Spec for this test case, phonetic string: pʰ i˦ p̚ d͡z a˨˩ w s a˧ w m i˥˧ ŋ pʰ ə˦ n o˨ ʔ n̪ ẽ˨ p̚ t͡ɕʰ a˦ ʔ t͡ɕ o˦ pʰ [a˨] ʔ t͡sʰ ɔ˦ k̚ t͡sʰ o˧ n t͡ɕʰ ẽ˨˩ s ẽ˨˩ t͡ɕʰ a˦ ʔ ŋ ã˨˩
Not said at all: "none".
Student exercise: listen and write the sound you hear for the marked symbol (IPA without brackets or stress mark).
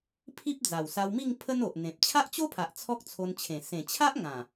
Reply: a˨